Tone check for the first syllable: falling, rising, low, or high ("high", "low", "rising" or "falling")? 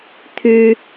high